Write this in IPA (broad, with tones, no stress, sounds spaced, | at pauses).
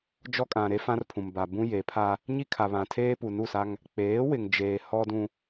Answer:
d͡ʒ ɔ˦ kʼ ã˨ ɾ e˦ f ã˦ r pʰ ũ˨ m b a˨ b ũ˦ j e˨˦ pʰ a˦ | ɲ i˦ kʰ a˨ β ã˨ tʰ eː˦ p u˨ n u˦˨ s a˦ ŋ | k͡p eː˨˦ w ɪ˨ ŋ d͡ʒ eː˨ h ɔ˦ d ũ˦